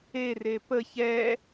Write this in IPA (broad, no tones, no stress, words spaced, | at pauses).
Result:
ere pə çɛ